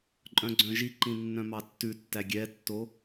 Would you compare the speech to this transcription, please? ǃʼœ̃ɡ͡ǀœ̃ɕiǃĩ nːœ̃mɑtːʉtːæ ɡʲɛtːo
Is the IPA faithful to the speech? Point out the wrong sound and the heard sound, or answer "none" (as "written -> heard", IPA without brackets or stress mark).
ɕ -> ʒ